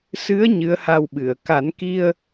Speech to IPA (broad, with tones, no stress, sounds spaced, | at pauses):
s ɨ˧˥ ə̯ ɲ ɨ˧˥ ə̯ h a˧ w ɓ ɨ˨˩˨ ə̯ k a˨˩˦ n k i˧ ə̯